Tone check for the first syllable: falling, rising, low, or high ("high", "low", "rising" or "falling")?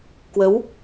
rising